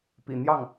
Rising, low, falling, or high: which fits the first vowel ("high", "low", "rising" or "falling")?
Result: low